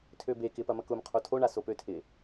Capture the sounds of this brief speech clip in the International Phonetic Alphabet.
tʰ ø b e k ɪ p ɐ m ɐ k ʊ m qʰ o tʰ o ɳ a s o p ø tʰ ɪ

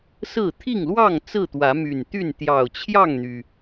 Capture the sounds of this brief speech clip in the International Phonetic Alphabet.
s ɹ̩˥˨ t̪ʰ i˥˨ ŋ l w ɑ˥˨ ŋ t͡s ɹ̩˥˨ t̪ w ä˨˦ m y˨˩ n t̪ y˥˨ n t̪ j ɑ˨˩ ʊ̯ t͡ɕʰ j ɑ˥˨ ŋ n̪ y˩

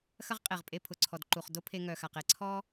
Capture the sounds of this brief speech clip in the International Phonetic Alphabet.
x ɐ˥ ʁ qʼ e˩ ʁ pʼ e˧ pʰ ʊ˩ ǀʰ ɔ˩ d ǃ u˩ χ d o˥ pʰ e˧ ŋ œ˩ x a˩ q e˧ ǀʰ ɔ˥

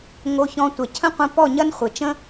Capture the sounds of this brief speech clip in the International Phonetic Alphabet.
ŋ o˧ ç ɔ̃˧ tʷ ɐ˨ cʰ ə̃˦ qʷ ə̃˧ p ɔ˦˨ ɲ ɐ˦ n χʷ ɘ˨ t͡ʃ ə̃˦

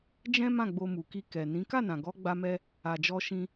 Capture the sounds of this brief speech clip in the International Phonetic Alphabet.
d͡ʒ ɛ̃˦ m ã˦˨ ɡ͡b o˧ m u˨ k i˧ k ɛ˨ n ĩ˨˦ k a˦˨ n ã˨ ɡ ɔ˨˦ ɡ͡b a˧ m ɛ˧ | a˨ d͡ʒ ɔ˧ ʃ ĩ˧

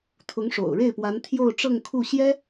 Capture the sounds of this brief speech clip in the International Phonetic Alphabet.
t̪ʰ ʊ˧˥ ŋ ʂ o̰˨˩ ʊ̯ ɻ e˥˩ ɪ̯ p w a˧˥ n t̪ʰ j o˥˧ ʊ̯ ʈ͡ʂ ɤ˥˧ ŋ kʰ u˥˩ ɕ j ɛ˥

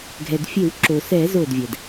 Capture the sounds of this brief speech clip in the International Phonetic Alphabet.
ɡʱ ɛ˩ d fʲ e˧˩˧ w ǁ o˩ s ɛ˧˩˧ z o˧˩ d vʲ ɛ˩ d

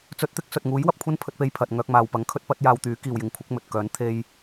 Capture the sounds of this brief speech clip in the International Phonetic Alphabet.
t͡s ɵ˧ t̚ t̪ ɪ˥ k̚ s ɵ˨ t̚ ŋ uː˨˥ j w ɐ˨ p̚ kʷʰ ɐ˥ n pʰ ɵ˧ t̚ p e˧ j pʰ ɐ˨ t̚ ŋ œː˧ k̚ m aː˨ w p ɐ˨˥ ŋ kʰ ɵ˥ t̚ p ɐ˥ t̚ j aː˧ w t̪ yː˨˥ k iː˨ w j ɪ˨ ŋ kʷʰ ɪ˨˥ k̚ m ɵ˨ t̚ k œː˨˥ n t̪ʰ e˥ j

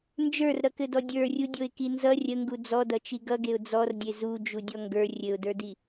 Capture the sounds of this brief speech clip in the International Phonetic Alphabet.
n d͡ʒ ə˞ r ɾ ʌ k ɘ d ɔ dʲ ə˞ rʲ u dʲ o ɪ̯ k i n z ʌ rʲ ə ŋ ɡ u d͡z ɔ d ʌ t͡ʃ i ɡ ʌ ɡ e ʊ̯ d͡z ɔ r dʲ e z u d͡ʒ u dʲ ɔ ŋ ɡ ə˞ rʲ ɘ ʊ̯ d ə˞ d i

